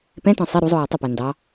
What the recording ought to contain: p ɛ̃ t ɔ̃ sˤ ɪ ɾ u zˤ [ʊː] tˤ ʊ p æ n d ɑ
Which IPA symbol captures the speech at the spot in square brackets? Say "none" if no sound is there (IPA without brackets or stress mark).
ʊː